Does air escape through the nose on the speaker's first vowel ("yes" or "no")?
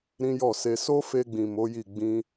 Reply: yes